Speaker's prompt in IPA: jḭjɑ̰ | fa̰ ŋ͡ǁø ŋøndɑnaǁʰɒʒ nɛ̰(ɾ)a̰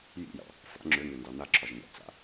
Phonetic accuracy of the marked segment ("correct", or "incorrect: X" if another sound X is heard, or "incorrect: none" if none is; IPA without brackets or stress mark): incorrect: t͡s